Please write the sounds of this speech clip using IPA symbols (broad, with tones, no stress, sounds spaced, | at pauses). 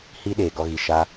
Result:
h i˦ ɗ eː˨ ɡ ɔ˧ ɣ i˨ ʃ a˦